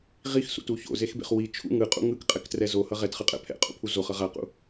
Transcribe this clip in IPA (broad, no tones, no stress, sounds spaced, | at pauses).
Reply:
ʁ i x s ṵ t u ç o̰ z e x b ḛ χ w i t͡ʃʰ ṵ ŋ ɯ qʼ ṵ ŋ ɯ k qʼ ɛ k t r ɛ z o h ʌ ʁ ɛ t χ ɯ qʼ ɛ̰ pʰ ɛ̰ qʼ ṵ pʰ u z o χ ʌ ʁ a q ṵ